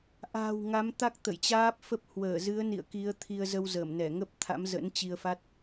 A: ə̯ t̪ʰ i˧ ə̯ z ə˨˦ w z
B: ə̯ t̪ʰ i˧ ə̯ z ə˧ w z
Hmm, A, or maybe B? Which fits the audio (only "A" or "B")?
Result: B